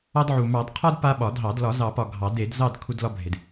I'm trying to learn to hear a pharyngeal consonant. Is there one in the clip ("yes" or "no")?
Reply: yes